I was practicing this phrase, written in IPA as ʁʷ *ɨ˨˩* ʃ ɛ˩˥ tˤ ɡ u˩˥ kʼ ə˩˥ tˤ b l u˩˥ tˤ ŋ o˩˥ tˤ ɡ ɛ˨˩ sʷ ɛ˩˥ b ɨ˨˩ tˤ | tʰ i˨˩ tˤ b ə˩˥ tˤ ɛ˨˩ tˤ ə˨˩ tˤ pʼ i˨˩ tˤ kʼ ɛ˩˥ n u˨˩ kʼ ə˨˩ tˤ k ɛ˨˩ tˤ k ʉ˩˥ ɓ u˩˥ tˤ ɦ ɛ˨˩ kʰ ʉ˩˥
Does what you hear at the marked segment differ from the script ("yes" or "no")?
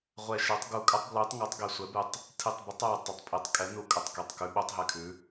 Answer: yes